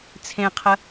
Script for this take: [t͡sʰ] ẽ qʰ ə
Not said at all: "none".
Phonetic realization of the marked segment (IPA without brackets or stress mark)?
t͡sʰ